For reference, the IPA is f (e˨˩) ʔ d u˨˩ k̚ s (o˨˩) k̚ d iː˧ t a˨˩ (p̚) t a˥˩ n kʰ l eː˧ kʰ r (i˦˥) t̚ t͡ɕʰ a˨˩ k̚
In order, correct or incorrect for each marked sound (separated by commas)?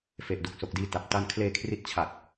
correct, correct, correct, correct